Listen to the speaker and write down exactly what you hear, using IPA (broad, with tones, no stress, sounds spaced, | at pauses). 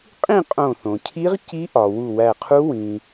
qʼ ĩ˥˧ qʼ õ˧˩ θ õ˩ cʰ i˦˥ ʁ c i˦˥ ʔ ɒ˩ w u˧˩ w æ˧˩ qʰ u˦˥ w ĩ˩